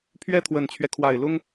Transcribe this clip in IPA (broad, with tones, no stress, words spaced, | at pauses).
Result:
pʰɥɛ˥t̪ʰwə˨˩nt͡ɕʰɥɛ˦kʰwa˨˩ɪ̯ lʊ˥ŋ